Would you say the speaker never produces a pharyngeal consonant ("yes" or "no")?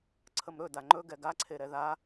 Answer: yes